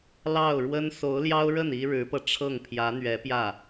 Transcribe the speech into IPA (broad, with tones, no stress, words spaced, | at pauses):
lɑ˥˩ʊ̯ɻwə˥n so˧˥ʊ̯ljɑ˥ʊ̯ɻə˥˩n i˥ɻɻ̩˧˥pɤ˧ ʈ͡ʂʰɤ˥˩ŋpʰjä˧˥ n̪ɥɛ˧˥pjä˥˩